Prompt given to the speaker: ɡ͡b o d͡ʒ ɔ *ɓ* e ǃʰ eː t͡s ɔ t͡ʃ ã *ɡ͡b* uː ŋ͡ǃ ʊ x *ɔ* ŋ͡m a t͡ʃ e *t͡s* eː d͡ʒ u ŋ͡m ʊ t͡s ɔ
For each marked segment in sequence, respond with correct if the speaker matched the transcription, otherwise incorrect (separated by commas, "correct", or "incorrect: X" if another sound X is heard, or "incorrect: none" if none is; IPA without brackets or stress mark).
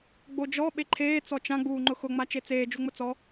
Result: correct, correct, incorrect: ʊ, correct